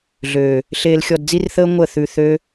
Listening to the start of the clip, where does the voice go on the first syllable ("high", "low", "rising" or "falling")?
low